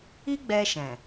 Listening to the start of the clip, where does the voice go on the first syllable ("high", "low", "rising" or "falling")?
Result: high